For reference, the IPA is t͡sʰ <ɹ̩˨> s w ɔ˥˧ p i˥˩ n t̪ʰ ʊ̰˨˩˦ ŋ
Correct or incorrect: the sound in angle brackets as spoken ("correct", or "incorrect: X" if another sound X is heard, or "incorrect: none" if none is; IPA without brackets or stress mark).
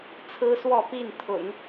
incorrect: ɹ̩˥